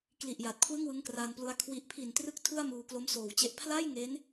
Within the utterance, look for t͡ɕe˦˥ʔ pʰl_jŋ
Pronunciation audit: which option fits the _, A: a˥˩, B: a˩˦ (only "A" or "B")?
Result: A